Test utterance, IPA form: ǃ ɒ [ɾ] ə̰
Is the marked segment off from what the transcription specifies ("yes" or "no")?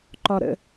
no